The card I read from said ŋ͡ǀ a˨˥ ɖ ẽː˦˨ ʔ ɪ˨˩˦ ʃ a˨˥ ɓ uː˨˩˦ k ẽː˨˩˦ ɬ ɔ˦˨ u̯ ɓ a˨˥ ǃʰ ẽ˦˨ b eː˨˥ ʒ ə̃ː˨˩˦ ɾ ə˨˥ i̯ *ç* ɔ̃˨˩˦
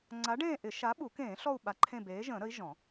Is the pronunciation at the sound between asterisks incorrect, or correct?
incorrect